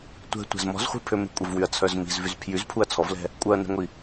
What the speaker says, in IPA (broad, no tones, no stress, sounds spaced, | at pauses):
tʷ ɛ̤ tʷ ɛ̤ z m ɔ̤ z χʷ i̤ pʰ ø m e̤ kʷʼ ə v w y ɐ̯ t͡sʰ œ z m i̤ z v y z pʰ j y z pʰ u ɐ̯ t͡sʰ ɔ v l ɛ̤ | kʷʼ œ ɐ̯ n ɛ̤ ŋʷ i